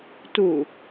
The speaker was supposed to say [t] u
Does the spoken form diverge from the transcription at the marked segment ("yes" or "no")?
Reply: no